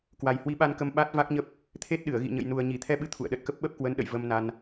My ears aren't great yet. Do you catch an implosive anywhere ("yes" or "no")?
yes